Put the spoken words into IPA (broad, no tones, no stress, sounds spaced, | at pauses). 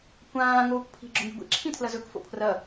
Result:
kʷ ãː ŋ oː kʷ pʰ i̤ ɡ͡ǁ ɵ ŋ i̤ ɡʷ ḭ ǁʰ ĩ tʰ l ɐ z ɵ k f o̰ pʰ r ɐ